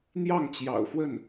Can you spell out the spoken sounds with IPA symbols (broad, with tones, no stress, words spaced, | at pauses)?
n̪jɑ˥˩ŋt͡ɕjɑ̰˨˩ʊ̯ fwə˥˩n